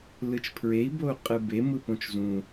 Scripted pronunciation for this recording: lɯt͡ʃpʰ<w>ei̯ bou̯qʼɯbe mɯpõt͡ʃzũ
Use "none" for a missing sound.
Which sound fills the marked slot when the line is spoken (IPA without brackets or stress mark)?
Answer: ɹ